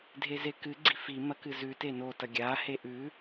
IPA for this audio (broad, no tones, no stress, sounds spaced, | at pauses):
dʱ e z e k ɨ ɡ͡ǀ i f i m ɐ k ɨ z ʉ t e n o t ɐ ɡʲ a h e ʔ ʉ